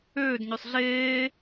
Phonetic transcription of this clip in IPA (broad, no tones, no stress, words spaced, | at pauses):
øːdɲøsˤ ɮeː